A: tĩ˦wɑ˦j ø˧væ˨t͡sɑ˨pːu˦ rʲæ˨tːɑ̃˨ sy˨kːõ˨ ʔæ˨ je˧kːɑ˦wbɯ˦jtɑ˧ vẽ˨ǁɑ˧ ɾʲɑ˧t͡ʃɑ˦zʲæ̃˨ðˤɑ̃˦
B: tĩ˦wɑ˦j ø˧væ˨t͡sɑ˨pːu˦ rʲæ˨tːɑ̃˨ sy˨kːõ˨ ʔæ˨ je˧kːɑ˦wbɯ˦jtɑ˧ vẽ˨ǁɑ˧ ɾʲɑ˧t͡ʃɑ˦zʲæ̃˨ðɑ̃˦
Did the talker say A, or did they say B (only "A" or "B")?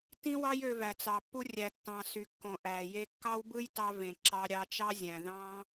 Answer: B